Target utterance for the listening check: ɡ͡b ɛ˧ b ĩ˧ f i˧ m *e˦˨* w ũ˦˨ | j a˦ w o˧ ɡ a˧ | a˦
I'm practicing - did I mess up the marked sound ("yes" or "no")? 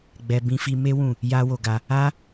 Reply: yes